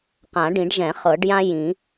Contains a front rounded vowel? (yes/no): no